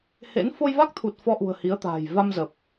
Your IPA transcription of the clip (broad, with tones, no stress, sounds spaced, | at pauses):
h ḛ˧˥ n f o˧ j v a˦˥ k̚ t̪ʰ u˨˩ t̚ f ɔ˧ ʔ ṳ˨˩ ə̯ h i˨˦ ə̯ t̪ a̤ː˨˩ j v a˧ m z ə˨˩ p̚